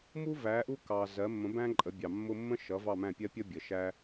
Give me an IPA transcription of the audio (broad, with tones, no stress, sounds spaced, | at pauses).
m u˥ v æ˩˥ ʔ u˥ k ɑ˩ z ɜ˩˥ mː ə̃˩˥ b æ̃˥ ǃʼ ə˩˥ bʲ ɑ˩ mː ʊ˥ mː ə̃˥ ʃ ʌ˩˥ v ɑ˥˩ m æ̃˥˩ pʲ ɜ˥ pʲ ʌ˥ bʲ ə˩ ʃ æ˥